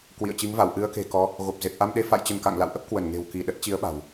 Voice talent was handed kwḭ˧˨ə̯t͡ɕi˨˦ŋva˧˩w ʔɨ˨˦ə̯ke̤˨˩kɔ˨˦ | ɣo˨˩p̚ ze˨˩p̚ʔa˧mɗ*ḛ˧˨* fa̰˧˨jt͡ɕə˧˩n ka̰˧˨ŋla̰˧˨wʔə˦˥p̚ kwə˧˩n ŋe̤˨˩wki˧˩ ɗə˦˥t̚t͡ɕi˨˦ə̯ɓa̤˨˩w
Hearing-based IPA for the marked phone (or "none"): e˧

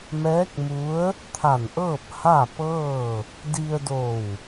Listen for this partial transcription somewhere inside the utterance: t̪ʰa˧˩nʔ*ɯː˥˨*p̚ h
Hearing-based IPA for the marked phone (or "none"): ɤː˥˨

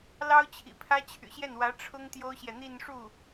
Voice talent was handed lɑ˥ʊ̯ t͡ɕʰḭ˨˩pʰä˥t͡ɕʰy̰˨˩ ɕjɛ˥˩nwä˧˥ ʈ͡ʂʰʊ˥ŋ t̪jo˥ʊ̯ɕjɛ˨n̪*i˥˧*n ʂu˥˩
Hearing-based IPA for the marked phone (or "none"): i˥˧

